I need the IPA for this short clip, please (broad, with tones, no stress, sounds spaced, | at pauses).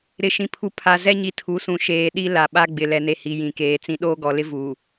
ɾ ɪ˨ ʃ ĩ˨ pʰ u˨ pʰ a˨ z ɛ˦ ɲ i˨ tʰ u˨˦ s ũ˨ ʃ eː˨ ɗ i˦ l a˨ ɓ a˦ ɡ͡b ɪ˨ l ɛ˨ n e˨ h i˨ j ĩ˨ k eː˨ t͡s ĩ˦ ɗ oː˦ ɡ ɔ˨ l ɪ˦ v uː˨